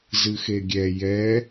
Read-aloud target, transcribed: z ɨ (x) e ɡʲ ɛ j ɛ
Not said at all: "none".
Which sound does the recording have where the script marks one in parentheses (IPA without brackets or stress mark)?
x